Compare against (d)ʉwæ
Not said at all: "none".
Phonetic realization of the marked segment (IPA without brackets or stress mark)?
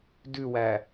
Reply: d